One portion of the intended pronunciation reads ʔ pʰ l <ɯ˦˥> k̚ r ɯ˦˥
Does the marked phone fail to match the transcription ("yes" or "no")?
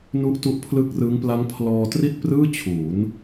no